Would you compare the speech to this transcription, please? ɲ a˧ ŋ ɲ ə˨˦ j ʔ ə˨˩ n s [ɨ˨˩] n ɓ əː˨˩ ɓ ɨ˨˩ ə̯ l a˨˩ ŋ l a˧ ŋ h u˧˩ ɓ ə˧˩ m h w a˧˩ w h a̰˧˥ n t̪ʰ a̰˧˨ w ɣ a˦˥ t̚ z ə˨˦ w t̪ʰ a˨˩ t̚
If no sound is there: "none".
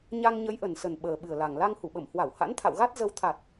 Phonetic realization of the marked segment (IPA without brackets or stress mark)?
ə˨˩